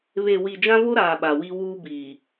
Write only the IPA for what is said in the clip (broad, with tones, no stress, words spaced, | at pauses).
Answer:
βe˨wi˨ d͡ʒã˦vo˦ɾaː˨ ɓa˨wi˦ wuː˦biː˨